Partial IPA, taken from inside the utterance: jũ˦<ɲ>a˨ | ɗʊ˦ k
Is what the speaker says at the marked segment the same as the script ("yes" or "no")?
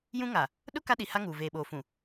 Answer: no